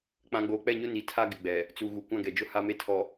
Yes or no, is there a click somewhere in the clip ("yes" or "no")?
no